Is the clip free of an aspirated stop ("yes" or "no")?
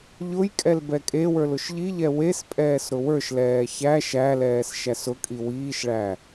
yes